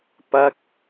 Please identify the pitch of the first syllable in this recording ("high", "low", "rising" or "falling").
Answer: falling